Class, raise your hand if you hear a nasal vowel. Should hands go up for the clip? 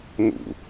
no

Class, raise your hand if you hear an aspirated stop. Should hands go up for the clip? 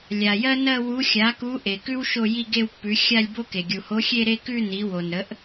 no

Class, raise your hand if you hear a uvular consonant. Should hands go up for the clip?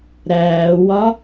no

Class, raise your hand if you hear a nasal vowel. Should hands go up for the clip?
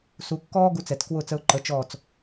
no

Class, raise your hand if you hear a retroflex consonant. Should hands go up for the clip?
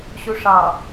yes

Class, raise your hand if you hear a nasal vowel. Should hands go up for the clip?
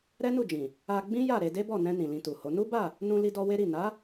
yes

